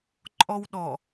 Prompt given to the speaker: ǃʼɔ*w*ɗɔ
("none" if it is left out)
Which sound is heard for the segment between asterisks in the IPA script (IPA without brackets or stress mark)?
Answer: w